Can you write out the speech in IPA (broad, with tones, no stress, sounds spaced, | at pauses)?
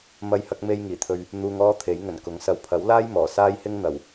m ɐ˥ j h ɐ˥ k̚ m e˥ j ŋ iː˨˩ t̪ʰ ɵ˧ ɥ | n̪ uː˧ ŋ ɔː˥ t̪ʰ e˨˥ j ŋ ɵ˨˩ n k ʊ˨˥ ŋ s ɐ˨ w pʰ ɐ˨˥ w l aː˥ j m ɔː˨˩ s aː˥ j h ɪ˥ ŋ n̪ ɐ˨˩ w